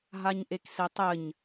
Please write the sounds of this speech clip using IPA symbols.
ɦ a ɲ ʔ e k s e tˤ ɘ ɲ

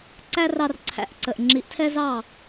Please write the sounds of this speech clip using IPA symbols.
ǀ æ˦ r ɑ˧ r ǀʰ æ̰˨˦ ʔ ǀ ə˨ ʔ ŋ͡ǁ i˨˦ ʔ tʰ ɛ˦ z ɑ˦˨

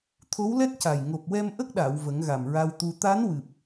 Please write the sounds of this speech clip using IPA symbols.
t̪ʰ o˧˥ w l ɛ˦˥ t̚ c a˨˩ j ŋ o˨˩ p̚ w ɛ˧ m ʔ ə˦˥ k̚ ɗ a˨˩˨ w v ə˨˩˦ ŋ ɣ a˨˩ m ɹ a˧ w t̪ u˧ t̪ a˧˥ n w ɨ˨˩ p̚

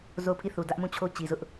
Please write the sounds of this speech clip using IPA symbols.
z o˦˨ ʊ̯ pʰ i˦˨ θ u˨ d ä˦ ʔ m ũ˦˨ t͡ɕʰ o˦ t͡ɕ i˨ z ʊ˦ ʔ

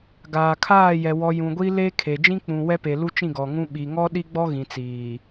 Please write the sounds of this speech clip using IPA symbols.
ɡ aː˨ kʰ aː˦˨ j ɛ˨ w ɔ˨ j ũ˨ ɡʷ i˦ l e˦ kʰ e˨ d͡ʒ ĩ˦ k͡p ũ˨ w ɛ˦ p e˨ l u˦ t͡ʃ ĩ˦˨ ɡ ɔ˨ ŋ ũ˦ ɓ i˨ ŋ ɔ˦ ɗ i˦ ɡ͡b ɔ˦ ɣ ĩ˨ t͡s iː˨

